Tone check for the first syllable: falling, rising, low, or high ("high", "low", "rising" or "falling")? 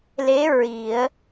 rising